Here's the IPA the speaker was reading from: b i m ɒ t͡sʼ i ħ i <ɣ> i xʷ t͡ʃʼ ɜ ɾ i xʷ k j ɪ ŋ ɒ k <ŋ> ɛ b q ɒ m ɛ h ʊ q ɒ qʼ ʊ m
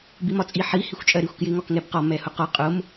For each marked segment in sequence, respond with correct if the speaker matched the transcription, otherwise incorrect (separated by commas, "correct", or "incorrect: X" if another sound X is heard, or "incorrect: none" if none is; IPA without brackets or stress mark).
incorrect: h, correct